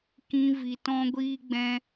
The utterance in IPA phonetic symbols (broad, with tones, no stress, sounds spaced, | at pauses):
k ĩ˦ v i˧ t ɔ̃˦ ɡʷ iː˦ ɡ͡b ɛ̃˦